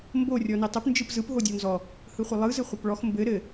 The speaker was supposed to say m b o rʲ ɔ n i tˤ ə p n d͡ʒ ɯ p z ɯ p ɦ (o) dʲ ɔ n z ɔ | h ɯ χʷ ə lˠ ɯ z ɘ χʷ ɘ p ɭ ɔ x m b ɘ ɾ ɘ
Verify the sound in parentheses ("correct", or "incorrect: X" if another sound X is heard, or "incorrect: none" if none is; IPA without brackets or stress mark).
correct